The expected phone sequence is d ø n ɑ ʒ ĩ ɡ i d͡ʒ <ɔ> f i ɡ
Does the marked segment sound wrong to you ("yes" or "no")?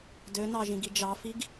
yes